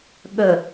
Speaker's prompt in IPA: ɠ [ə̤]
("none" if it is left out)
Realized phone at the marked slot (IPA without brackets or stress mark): ə